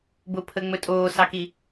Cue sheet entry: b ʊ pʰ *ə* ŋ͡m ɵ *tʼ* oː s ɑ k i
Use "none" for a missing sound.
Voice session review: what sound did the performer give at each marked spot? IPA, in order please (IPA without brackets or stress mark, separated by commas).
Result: ə, tʼ